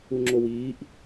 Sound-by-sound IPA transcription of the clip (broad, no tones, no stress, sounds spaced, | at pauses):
u ŋ͡ǁ o w iː ʔ